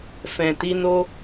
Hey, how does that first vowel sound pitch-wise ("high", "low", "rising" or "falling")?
low